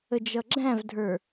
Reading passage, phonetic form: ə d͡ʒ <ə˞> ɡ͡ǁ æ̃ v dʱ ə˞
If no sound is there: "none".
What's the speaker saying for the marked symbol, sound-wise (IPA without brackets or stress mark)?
ʌ